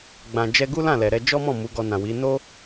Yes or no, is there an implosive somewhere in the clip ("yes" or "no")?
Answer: no